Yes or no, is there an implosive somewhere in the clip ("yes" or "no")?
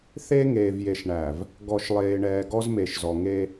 no